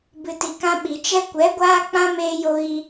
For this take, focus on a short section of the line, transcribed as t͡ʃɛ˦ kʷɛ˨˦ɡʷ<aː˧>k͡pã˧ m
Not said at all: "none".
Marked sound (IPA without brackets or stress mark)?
aː˧